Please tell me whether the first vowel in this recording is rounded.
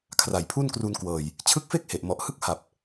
no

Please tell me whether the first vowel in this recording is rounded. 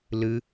no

